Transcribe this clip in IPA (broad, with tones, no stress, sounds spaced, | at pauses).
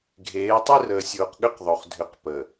ɡʱ eː˨˦ tˤ i˦ r əː˨ sʲ oː˨ q ɠ ʏ˦ q ðˤ o˨ χ dʱ ʏ˨˦ q p ə˨